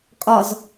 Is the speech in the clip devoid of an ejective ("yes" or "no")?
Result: no